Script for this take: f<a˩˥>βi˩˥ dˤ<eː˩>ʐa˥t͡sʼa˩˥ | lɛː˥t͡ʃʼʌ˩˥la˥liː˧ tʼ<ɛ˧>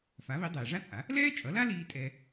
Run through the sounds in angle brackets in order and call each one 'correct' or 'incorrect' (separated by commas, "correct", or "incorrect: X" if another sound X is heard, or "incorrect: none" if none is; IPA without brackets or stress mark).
correct, correct, correct